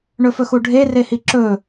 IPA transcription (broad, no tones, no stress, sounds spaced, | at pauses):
ɳ ɵ f ɵ x u ɖʱ e r e h i ǁ ɵ